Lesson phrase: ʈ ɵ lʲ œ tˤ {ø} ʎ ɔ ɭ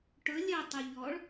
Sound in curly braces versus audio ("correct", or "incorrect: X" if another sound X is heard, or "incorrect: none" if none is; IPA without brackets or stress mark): correct